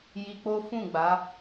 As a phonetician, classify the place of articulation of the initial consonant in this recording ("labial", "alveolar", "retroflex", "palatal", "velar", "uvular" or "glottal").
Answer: palatal